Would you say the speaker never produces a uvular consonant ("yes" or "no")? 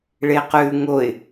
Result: no